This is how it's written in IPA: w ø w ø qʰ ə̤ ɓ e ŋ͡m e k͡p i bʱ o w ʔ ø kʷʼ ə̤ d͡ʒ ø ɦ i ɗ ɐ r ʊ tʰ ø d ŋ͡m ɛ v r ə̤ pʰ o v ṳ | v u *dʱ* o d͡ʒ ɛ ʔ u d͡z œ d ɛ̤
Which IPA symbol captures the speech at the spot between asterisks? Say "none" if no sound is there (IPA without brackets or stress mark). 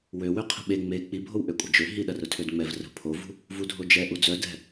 dʱ